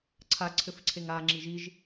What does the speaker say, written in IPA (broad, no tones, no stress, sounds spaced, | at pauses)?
ǀʰ a ǀʰ ɘ f ǀʰ e ŋ a ŋ͡ǁ i ʒ i ʒ